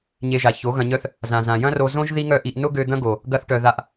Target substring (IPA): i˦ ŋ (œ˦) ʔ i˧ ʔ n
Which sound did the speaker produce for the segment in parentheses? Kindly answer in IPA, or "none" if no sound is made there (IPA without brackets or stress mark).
œ˦